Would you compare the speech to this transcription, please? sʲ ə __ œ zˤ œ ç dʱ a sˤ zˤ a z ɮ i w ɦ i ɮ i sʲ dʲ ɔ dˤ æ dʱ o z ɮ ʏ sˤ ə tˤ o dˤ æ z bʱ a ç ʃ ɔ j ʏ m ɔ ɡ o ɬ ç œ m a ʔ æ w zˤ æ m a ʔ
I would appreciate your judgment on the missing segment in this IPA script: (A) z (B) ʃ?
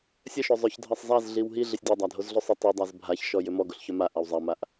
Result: B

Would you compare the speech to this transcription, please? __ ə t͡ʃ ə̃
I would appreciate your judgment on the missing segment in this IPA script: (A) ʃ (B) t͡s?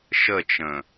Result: A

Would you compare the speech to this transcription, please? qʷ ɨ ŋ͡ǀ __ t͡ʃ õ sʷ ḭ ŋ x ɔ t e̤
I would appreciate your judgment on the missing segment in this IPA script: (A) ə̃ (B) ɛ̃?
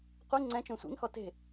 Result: B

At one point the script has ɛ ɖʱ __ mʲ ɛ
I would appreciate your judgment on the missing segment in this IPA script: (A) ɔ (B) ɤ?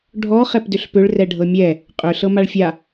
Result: B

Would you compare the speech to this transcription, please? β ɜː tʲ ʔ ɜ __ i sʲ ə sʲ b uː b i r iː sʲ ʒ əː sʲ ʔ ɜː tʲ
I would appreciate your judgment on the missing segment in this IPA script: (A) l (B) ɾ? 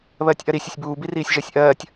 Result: B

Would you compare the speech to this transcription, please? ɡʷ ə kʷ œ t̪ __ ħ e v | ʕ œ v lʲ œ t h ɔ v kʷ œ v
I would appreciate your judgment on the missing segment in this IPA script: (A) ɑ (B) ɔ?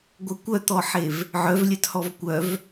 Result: B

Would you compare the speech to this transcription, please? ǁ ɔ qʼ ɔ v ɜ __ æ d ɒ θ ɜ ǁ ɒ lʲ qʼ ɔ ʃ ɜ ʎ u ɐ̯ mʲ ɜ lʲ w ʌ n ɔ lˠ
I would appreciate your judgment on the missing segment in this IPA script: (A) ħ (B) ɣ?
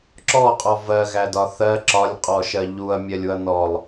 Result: B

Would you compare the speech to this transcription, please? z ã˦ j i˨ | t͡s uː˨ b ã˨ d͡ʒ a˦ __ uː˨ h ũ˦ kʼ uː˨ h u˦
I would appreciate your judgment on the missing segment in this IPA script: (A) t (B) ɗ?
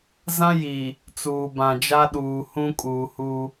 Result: B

